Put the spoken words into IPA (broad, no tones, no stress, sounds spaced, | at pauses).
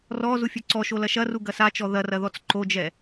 r ɔ z u fʲ ɘ ǀ ɔ ʃ o l ɐ ʃ ɐ r u ɡ ɐ s a t͡ʃ ɔ ð ɐ r ɐ ð ɔ t͡s ǃ o d͡ʒ ɛ